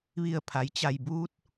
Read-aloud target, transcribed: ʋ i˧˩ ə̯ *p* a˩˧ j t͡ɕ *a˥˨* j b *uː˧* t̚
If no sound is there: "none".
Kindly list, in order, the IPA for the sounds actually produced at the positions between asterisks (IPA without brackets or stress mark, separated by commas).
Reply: pʰ, a˩, uː˧